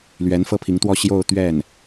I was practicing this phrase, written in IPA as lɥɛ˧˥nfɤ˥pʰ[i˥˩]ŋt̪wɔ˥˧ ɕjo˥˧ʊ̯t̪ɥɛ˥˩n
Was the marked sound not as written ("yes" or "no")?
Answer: yes